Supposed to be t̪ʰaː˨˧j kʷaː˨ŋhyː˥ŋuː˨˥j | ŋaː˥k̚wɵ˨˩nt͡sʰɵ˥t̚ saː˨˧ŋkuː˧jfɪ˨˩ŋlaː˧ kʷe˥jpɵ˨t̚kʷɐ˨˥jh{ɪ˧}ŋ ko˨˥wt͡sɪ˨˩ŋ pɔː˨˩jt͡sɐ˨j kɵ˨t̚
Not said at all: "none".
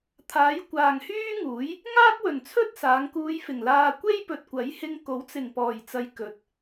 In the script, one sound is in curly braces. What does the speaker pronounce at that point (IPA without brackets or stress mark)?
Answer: ɪ˧